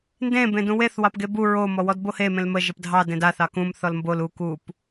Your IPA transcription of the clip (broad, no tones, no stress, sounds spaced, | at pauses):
n d ẽ b ẽ d ũ w e θ w ɑ p ɡ e b u ɹ o m ɔ w ɔ d b o h e m ẽ l m ə ʒ ə p dʱ ɑ d ẽ d a θ ɑ k ũ m θ ɔ l m b o l u k u p